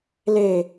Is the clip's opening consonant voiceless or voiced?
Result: voiced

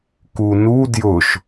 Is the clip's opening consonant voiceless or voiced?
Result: voiceless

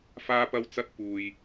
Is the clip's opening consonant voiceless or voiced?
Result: voiceless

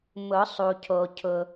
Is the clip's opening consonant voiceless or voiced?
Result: voiced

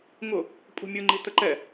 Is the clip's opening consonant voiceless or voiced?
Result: voiced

